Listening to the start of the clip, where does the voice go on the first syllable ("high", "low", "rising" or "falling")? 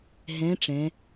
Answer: rising